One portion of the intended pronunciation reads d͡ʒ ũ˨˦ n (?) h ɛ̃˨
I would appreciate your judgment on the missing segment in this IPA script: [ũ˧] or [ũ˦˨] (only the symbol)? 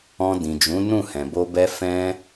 ũ˦˨